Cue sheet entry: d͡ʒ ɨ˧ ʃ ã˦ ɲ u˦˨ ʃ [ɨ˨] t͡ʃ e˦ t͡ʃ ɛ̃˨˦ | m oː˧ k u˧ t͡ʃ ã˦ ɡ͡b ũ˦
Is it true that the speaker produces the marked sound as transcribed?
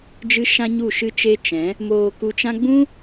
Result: no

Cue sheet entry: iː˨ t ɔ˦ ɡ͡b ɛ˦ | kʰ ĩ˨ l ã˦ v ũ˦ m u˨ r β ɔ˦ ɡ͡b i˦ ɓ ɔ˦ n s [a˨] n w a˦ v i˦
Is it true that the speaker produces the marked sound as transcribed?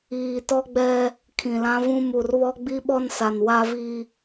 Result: yes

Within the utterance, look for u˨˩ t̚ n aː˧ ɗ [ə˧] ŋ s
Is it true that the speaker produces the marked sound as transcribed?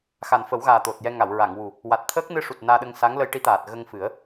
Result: yes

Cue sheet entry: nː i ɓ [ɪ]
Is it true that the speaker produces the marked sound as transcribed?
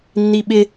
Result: yes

